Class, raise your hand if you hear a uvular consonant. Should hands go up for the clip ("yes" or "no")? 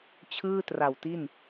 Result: no